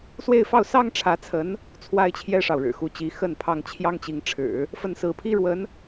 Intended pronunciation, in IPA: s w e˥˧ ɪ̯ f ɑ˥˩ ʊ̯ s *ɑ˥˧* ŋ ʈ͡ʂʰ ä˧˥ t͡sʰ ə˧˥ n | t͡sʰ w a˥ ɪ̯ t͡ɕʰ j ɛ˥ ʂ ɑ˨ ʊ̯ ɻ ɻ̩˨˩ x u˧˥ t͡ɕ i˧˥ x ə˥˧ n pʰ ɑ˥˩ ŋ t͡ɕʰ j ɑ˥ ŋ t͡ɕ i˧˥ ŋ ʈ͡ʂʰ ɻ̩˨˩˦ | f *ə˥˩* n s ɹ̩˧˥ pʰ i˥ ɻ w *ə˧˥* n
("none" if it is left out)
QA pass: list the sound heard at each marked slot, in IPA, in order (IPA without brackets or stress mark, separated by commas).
ɑ˥, ə˥˩, ə˧˥